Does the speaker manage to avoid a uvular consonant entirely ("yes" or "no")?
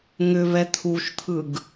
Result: yes